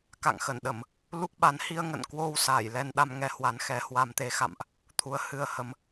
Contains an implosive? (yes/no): yes